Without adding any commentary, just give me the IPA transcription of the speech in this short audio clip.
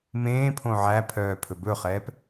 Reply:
m ẽː pʰ õ ʕ æ pʰ œː pʰ ɵ b ɵ χ ɛː p

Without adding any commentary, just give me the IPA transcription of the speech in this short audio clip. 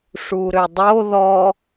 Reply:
ʂ u ɾ ø dˤ o ð ɔ

